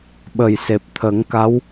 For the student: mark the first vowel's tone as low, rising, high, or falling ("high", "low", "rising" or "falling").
low